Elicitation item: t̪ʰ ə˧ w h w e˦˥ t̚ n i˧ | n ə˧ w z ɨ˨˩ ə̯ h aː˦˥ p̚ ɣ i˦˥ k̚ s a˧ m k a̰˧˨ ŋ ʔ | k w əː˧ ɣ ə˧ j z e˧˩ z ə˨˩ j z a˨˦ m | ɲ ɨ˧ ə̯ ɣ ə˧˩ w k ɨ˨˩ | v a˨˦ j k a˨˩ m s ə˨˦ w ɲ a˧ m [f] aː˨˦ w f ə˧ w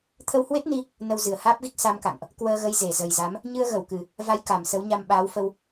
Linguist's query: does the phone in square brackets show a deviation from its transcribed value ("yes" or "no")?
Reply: yes